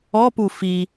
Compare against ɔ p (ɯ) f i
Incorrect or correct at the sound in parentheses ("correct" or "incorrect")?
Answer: incorrect